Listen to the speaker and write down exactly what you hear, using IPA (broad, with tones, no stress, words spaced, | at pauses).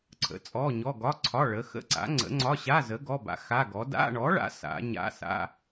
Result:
ǀʰə̰˨˥t͡sʼɔ˧˥˧ɲɔ˧˥˧ ɡɒ˧˥˧ǀʰɒ˧˥˧ ɭə˨˥ xə̰˧˥˧ǀa̰˨˥ŋ͡ǀə̰˨˥ ŋ͡ǀɒ˧˥˧ɕa˧˥˧zə˨˥ ɡɔ˧˥˧ba̰˨˥xa˧˥˧ɡɔ˨˥ da̰˧˥˧ɳɔ˨˥ɭa̰˨˥ sa̰˨˥ ɲa̰˧˥˧sa̰˧˥˧